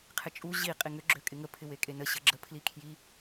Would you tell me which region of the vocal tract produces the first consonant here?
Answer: uvula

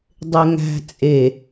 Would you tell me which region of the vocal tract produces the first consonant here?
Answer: tongue tip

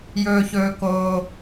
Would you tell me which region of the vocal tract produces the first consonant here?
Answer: palate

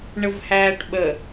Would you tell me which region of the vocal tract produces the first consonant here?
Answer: retroflex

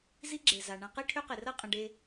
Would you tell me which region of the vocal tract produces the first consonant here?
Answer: tongue tip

